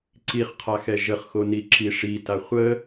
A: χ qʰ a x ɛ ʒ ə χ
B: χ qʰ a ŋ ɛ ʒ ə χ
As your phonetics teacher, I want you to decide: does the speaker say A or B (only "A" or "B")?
A